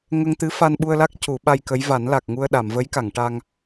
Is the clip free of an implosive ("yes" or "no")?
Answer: no